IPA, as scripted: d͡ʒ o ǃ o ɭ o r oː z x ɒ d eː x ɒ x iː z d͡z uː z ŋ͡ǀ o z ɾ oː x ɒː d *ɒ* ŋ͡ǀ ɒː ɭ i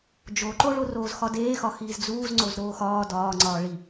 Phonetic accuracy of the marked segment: incorrect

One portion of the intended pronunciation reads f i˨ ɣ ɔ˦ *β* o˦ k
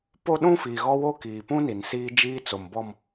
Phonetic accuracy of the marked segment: incorrect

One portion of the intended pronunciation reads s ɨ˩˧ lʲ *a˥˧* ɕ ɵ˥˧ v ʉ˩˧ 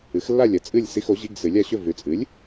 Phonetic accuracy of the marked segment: correct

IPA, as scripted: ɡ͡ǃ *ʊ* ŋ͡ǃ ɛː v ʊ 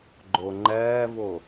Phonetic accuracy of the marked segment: correct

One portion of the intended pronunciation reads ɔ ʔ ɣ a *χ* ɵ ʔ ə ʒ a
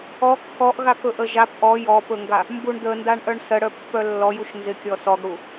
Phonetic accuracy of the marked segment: incorrect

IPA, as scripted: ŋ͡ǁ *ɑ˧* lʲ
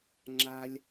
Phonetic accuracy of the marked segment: incorrect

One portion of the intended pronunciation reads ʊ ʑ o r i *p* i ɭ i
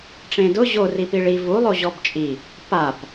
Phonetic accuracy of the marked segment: correct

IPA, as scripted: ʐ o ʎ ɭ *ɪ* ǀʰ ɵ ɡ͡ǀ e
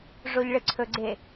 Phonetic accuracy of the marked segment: correct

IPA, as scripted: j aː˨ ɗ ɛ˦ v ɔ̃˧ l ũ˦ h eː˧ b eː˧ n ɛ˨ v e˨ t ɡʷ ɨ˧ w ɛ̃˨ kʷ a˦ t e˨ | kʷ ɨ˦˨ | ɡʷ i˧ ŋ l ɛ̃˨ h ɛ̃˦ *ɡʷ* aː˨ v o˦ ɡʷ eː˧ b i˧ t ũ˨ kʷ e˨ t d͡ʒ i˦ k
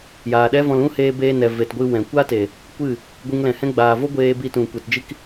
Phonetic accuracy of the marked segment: incorrect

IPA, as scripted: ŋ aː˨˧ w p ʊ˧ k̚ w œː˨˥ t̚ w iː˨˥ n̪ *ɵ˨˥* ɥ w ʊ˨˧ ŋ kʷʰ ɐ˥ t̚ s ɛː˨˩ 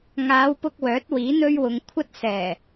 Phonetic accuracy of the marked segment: incorrect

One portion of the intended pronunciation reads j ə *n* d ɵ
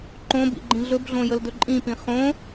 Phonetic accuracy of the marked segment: incorrect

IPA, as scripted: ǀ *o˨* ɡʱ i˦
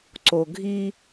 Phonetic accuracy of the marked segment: correct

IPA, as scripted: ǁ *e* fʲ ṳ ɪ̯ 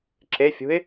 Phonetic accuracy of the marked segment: correct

